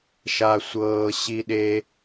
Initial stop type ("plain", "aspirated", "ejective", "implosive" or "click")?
implosive